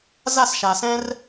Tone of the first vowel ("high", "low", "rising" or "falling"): falling